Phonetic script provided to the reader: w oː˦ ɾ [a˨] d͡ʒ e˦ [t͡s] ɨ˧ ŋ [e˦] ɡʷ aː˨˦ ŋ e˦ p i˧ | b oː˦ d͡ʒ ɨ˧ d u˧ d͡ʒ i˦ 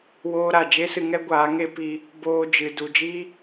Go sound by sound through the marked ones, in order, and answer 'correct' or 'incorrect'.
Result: correct, incorrect, incorrect

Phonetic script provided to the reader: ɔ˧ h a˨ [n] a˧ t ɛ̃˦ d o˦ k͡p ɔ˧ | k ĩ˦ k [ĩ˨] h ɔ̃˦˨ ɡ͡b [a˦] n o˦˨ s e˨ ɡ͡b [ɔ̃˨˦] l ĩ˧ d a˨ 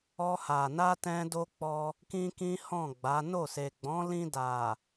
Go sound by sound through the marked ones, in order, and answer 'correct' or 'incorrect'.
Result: correct, incorrect, incorrect, correct

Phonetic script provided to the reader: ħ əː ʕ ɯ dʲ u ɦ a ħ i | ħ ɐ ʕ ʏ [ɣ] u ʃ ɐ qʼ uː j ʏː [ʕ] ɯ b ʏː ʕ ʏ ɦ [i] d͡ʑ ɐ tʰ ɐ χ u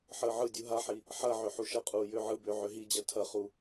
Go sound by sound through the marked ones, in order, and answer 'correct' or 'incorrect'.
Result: incorrect, correct, correct

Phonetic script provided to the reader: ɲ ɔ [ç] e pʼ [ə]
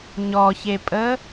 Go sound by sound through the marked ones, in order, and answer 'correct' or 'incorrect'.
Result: correct, correct

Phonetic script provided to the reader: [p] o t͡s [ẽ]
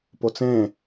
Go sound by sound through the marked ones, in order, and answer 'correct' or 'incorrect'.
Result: correct, correct

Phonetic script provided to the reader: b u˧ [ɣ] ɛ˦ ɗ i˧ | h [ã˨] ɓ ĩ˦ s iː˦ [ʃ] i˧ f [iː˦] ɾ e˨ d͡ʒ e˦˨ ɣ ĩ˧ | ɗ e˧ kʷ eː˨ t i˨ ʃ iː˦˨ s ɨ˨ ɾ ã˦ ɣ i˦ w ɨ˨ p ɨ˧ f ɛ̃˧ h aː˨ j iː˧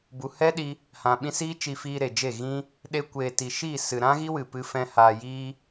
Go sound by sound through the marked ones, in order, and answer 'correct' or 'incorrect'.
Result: incorrect, incorrect, incorrect, incorrect

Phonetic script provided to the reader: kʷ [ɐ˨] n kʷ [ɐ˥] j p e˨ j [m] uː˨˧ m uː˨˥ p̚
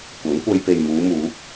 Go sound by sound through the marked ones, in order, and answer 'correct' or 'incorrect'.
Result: incorrect, incorrect, correct

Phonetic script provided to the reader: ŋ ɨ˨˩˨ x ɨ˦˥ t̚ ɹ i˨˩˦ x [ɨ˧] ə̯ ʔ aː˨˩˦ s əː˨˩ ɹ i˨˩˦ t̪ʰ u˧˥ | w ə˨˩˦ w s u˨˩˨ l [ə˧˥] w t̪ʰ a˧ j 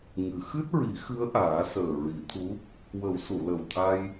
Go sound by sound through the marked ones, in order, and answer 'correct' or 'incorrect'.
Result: incorrect, incorrect

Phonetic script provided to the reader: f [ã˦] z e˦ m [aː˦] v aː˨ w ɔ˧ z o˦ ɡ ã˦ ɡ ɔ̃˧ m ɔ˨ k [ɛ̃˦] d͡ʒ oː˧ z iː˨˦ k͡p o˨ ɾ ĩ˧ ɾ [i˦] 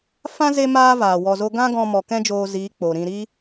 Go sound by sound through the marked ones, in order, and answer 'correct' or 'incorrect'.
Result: correct, correct, correct, correct

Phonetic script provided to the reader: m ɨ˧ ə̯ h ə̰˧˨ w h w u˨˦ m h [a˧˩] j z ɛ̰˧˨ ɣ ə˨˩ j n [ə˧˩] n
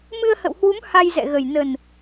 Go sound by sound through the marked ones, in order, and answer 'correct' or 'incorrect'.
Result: incorrect, incorrect

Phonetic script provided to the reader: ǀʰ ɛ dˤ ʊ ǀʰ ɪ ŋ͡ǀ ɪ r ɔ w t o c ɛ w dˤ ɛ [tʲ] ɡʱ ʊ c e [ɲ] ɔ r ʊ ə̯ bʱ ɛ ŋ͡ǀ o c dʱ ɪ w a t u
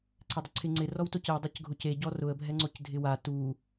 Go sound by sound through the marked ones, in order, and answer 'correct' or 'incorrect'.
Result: incorrect, incorrect

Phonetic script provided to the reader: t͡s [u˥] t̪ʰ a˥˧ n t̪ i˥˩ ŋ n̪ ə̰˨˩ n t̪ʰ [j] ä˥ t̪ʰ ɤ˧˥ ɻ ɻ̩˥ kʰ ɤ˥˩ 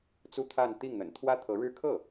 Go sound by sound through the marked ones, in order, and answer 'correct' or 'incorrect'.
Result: correct, incorrect

